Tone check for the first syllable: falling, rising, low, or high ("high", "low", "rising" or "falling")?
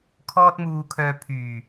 high